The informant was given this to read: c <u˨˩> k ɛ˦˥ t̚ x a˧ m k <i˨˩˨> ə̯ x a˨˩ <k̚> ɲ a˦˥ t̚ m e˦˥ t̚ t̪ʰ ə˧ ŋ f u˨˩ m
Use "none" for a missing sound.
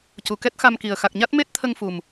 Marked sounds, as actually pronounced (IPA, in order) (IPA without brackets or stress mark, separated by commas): u˨˩, i˨˩, k̚